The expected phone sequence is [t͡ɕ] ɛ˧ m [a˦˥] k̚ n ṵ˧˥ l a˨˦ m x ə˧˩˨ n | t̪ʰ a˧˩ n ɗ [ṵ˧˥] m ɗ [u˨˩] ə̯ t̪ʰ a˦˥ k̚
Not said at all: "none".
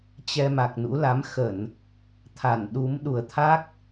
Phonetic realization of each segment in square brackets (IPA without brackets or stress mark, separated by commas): t͡ɕ, a˨˩, u˨˦, u˨˩